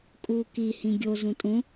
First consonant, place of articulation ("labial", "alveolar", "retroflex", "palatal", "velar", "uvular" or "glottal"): velar